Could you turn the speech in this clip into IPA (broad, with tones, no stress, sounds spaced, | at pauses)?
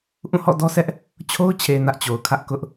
ʔ ũ˦˨ h ɔ̰˦˨ d ɔ˦ s ɛ˦ ʔ | t͡ɕʰ o˦ ʊ̯ t͡ɕʰ e˨ n ä˦ ʔ t͡ɕ o˨ ʊ̯ kʰ ä˦ ʔ k ʊ˦ ʔ